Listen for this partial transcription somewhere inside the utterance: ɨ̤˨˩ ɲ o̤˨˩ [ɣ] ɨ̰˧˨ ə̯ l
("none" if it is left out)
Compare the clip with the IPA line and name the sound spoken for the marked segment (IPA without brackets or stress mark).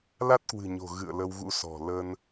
ɣ